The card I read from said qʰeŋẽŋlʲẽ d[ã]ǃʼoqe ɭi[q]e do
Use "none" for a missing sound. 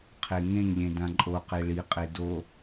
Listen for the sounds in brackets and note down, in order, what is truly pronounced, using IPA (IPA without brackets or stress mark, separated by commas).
ã, qʼ